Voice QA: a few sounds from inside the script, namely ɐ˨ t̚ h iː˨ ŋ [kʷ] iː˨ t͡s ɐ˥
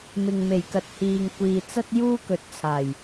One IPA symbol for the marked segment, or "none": kʷ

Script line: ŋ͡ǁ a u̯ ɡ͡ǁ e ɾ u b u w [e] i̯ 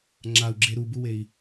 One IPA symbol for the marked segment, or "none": e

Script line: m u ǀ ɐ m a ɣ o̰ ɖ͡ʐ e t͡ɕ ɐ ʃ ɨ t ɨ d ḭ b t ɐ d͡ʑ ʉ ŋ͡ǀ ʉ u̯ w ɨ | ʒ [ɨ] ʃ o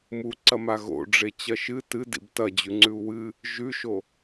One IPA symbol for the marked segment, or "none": ʉ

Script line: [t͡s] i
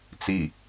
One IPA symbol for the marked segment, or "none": t͡s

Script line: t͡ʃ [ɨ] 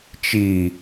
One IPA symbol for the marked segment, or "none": i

